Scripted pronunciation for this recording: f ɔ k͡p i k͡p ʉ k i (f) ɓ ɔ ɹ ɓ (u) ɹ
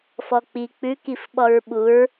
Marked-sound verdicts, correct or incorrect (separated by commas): correct, correct